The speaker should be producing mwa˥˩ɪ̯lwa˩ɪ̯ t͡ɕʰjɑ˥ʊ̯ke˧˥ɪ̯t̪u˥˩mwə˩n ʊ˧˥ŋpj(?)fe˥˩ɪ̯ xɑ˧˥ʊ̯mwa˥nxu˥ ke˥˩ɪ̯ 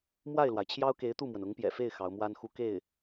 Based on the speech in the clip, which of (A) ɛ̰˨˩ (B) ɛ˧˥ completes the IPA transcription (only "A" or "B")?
A